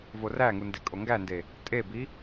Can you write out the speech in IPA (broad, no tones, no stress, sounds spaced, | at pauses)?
v o r æ ŋ u n d e kʼ o ŋ ɡ æ n d e | tʼ e b i